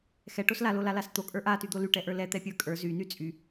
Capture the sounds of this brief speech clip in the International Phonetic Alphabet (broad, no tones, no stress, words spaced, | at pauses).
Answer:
xɛʈos lalolalas t̪okʼə˞ ʔatyd̪o lyʈɛʔə˞ lɛt̪ɛpʲə˞ kʼə˞ zyny t͡sʼy